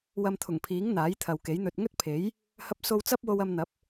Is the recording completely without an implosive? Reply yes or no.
yes